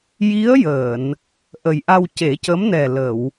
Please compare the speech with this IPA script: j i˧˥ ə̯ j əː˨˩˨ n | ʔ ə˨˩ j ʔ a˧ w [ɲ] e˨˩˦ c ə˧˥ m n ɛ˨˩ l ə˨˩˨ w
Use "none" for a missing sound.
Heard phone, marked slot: c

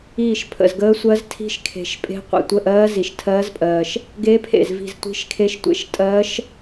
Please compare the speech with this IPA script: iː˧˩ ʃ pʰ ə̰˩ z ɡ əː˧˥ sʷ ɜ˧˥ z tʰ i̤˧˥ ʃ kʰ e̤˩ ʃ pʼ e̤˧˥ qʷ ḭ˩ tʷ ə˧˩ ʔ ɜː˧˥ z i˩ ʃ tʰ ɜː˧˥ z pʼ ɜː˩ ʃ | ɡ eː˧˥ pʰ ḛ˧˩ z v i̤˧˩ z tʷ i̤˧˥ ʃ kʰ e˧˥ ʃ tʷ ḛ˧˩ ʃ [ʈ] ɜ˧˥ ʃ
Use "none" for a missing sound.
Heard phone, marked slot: tʼ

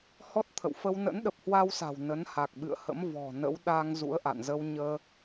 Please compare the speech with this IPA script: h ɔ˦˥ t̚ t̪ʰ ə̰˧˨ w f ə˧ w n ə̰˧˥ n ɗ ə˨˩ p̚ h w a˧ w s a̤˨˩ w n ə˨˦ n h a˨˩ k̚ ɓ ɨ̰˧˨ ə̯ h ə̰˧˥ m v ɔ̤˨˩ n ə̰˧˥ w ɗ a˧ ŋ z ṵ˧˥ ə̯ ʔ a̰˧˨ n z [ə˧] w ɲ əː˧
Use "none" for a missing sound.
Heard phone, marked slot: ə˧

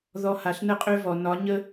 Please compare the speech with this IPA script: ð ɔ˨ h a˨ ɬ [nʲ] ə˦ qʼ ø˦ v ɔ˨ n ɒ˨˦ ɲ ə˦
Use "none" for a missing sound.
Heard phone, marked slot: n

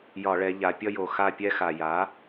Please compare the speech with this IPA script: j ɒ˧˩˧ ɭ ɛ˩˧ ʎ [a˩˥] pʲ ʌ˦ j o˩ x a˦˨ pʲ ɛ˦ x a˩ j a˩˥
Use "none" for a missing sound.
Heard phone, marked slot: a˩˧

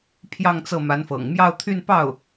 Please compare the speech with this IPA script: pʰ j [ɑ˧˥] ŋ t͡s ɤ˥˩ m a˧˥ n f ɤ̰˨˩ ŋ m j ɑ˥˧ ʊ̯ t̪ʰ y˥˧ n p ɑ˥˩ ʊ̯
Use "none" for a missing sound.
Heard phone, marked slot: ɑ˥˧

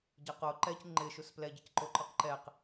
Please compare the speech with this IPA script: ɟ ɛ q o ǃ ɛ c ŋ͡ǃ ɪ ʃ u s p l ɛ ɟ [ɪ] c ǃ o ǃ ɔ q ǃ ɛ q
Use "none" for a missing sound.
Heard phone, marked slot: ɪ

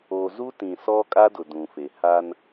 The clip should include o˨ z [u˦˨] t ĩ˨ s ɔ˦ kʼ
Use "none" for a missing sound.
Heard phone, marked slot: u˦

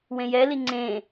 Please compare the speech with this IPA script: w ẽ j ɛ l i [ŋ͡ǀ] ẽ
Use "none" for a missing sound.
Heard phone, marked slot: ŋ͡ǀ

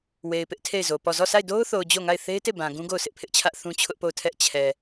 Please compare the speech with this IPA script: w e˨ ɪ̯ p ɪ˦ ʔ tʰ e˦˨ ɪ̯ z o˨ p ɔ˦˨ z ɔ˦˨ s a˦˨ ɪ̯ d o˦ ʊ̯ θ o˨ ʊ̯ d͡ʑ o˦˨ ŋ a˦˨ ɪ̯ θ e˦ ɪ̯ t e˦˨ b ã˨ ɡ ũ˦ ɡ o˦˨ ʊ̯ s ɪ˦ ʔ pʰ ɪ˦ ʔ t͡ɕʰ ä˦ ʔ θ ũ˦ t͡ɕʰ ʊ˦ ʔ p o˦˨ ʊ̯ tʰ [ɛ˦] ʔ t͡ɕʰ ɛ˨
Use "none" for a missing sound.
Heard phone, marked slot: ɛ˦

